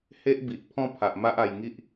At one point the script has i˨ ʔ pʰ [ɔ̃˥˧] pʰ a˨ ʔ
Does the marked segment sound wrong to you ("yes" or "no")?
no